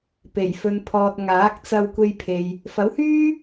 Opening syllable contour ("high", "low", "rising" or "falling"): low